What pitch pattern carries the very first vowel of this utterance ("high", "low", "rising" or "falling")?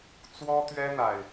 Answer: high